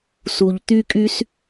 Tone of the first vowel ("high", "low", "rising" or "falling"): low